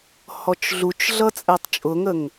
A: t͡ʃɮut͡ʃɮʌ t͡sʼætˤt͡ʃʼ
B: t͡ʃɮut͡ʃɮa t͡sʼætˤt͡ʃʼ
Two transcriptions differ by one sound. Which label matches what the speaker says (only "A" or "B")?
A